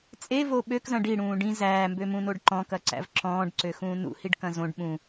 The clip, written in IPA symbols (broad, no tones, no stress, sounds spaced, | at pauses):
t͡sʼ e v o ɓ ø k z ɐ̃ ɖ i ɽ ũː ɖ ĩ z æː m b ø m ũ n o ɖ ǃ ɔ̃ k ɐ ǀ æ̰ v ǁ ɔ̃ː ɖ ǀ ø x ũː n ṵ h i ɖ k ɐ̃ z õ ɖ ɓ ũ